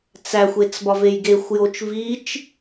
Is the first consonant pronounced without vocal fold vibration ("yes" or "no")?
yes